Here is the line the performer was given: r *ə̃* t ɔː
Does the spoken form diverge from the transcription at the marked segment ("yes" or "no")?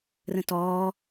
no